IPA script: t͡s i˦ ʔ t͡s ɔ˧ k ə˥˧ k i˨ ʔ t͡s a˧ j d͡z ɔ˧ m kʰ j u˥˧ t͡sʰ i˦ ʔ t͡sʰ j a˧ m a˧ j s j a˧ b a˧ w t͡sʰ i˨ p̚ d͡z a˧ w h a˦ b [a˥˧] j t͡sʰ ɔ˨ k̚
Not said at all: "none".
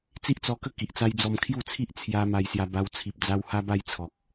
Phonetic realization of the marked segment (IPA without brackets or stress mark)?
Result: a˥˧